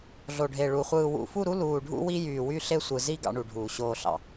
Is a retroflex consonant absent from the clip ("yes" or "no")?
no